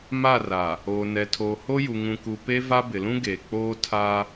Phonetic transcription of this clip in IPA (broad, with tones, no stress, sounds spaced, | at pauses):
m a˦˨ r a˨ | oː˨ n ɛ˨ tʰ oː˨ h o˦ j u˨ ŋ ũ˨ k u˨ p e˦ v a˦ b ɪ˨ l ũ˦ ɡ eː˨ k͡p oː˦ tʰ a˦